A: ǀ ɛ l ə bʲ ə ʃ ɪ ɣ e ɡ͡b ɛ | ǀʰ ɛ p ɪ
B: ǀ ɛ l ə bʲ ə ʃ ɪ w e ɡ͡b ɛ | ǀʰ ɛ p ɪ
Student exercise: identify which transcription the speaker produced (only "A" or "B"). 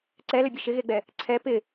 A